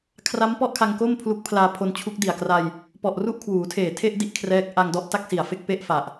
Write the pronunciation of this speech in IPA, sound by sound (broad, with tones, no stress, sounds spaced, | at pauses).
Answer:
kʰ r a˦˥ m p ɔ˥˩ ʔ kʰ a˧ ŋ k o˥˩ m pʰ l u˦˥ k̚ pʰ l aː˧ pʰ o˧ n t͡ɕʰ u˦˥ k̚ d i˨˩ a̯ k r a˧ j | p ɔ˨˩ ʔ r u˥˩ ʔ kʰ w uː˩˦ tʰ eː˨˩ tʰ e˥˩ ʔ d i˦˥ ʔ kʰ r ɛː˦˥ k̚ ʔ a˧ ŋ d ɔ˥˩ ʔ t a˥˩ k̚ s i˨˩ a̯ f e˥˩ k̚ p e˥˩ ʔ f a˨˩ ʔ